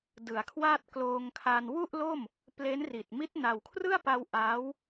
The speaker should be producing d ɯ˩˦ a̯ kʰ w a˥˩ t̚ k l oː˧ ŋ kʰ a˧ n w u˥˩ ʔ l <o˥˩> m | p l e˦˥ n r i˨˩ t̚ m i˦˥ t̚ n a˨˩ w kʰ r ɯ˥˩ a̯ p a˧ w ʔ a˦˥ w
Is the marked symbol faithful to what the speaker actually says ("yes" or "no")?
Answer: yes